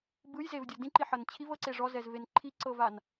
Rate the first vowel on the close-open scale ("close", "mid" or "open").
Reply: close